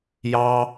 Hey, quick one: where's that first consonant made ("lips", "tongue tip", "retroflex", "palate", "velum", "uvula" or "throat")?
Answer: palate